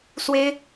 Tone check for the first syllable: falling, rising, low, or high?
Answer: high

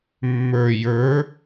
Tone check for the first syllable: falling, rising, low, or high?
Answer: low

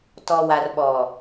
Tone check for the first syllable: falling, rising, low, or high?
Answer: low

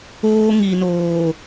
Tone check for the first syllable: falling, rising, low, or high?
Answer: high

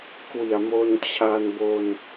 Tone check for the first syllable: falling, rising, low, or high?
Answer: low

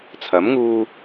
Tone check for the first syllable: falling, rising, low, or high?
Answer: rising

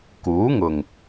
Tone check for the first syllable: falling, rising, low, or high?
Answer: rising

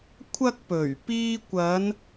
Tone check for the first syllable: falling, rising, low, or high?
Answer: high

